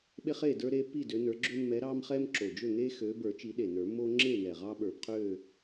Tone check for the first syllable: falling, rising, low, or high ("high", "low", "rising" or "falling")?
high